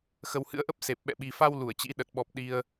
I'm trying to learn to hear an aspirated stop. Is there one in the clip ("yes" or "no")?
no